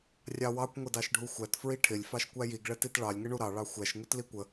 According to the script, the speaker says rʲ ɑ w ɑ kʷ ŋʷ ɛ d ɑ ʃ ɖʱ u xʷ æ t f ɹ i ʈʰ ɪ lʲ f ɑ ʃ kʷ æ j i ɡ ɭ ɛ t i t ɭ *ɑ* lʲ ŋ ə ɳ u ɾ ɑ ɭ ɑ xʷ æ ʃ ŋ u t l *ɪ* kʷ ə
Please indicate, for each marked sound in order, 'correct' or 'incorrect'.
correct, incorrect: i

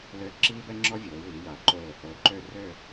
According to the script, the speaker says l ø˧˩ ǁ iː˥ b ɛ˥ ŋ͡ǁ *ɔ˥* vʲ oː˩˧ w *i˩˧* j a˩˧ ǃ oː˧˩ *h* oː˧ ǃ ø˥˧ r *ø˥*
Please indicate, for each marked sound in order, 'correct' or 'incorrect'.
correct, correct, correct, incorrect: ø˥˧

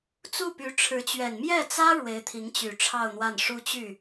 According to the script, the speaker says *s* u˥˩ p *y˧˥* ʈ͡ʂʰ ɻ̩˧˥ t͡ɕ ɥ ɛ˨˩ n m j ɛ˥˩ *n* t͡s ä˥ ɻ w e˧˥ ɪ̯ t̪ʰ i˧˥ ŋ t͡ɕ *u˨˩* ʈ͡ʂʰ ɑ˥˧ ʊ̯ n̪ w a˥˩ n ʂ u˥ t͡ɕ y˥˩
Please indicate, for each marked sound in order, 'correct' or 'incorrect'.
incorrect: t͡s, correct, incorrect: none, incorrect: y˨˩

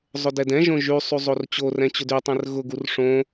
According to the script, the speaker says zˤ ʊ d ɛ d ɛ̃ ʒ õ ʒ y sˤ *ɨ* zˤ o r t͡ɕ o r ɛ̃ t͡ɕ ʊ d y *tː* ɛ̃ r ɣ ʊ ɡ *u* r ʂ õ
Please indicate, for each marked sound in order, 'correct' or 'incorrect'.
incorrect: y, incorrect: tˤ, correct

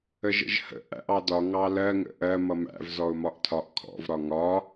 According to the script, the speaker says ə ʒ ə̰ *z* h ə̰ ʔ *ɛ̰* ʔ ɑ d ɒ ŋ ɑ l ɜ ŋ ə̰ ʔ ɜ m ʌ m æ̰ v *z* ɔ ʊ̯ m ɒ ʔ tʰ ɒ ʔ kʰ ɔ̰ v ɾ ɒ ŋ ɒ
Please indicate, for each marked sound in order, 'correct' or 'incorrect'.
incorrect: ʒ, incorrect: æ̰, correct

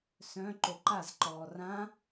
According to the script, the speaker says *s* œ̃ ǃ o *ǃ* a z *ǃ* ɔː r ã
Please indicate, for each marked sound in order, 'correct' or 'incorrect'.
correct, correct, correct

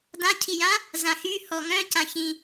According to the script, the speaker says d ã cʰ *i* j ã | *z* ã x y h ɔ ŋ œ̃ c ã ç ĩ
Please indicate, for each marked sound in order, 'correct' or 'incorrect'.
correct, correct

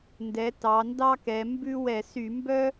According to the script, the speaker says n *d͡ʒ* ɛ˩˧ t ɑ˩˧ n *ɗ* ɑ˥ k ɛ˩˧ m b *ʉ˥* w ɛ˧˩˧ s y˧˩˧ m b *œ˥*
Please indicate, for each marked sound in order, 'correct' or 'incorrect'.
incorrect: d, incorrect: d, correct, correct

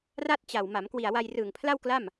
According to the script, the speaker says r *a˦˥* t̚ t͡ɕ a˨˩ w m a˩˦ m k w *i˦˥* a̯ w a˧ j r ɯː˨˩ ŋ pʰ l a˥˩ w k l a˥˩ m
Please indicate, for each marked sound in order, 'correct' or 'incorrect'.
incorrect: a˥˩, incorrect: i˨˩

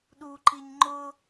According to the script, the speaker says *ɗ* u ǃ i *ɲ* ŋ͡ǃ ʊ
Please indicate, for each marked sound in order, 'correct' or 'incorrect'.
correct, correct

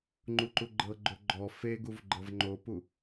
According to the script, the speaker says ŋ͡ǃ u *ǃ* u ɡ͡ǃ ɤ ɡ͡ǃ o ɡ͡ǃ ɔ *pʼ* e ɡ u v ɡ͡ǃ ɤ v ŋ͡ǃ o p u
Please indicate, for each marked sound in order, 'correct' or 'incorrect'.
correct, incorrect: f

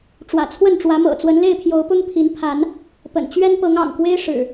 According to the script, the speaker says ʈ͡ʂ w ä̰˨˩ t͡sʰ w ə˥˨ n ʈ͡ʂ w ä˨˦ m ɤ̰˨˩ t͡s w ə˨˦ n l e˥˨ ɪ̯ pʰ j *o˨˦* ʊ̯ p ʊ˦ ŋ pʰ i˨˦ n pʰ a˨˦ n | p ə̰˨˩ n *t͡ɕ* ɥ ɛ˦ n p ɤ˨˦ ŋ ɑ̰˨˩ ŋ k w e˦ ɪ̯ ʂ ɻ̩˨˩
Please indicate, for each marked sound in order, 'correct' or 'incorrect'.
correct, correct

